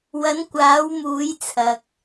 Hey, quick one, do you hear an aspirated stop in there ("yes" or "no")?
yes